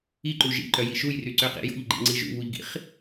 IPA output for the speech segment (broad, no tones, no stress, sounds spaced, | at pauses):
i ǃ u ʒ ḭ ǃ œ j i ʃ u j r y ǀ ø q ḭ j o̰ ʎ ɡ͡ǃ ḭ ŋ͡ǀ i ʒ ṵ β u ʎ ɡ ḭ χ